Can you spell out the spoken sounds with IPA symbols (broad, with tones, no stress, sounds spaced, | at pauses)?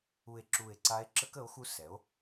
u˧˩ e̯ ǁ u˧˩ e̯ ǀ a˧˥ e̯ ǁ ə˧˥ k ə˩˥ o̯ x u˧˥ s ɛ˩˥ o̯